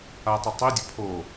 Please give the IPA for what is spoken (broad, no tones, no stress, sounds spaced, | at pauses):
a tˤ ʌ tˤ i dʲ ə pʰ o